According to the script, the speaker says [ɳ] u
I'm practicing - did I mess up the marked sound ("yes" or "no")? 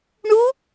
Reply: no